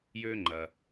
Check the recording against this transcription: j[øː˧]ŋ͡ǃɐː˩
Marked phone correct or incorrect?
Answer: correct